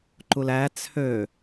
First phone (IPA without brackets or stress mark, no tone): ǃ